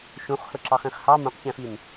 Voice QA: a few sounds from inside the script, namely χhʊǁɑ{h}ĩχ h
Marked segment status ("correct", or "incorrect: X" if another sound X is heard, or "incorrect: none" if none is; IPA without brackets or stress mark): incorrect: χ